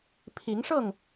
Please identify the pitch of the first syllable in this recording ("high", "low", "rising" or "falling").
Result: rising